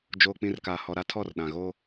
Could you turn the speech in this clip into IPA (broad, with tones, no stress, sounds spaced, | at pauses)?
d͡ʒ oː˨ k͡p ĩ˨ r k aː˨ h ɔ˨ ɾ a˦ tʰ ɔ˦˨ r ɗ ã˨ ɣ o˦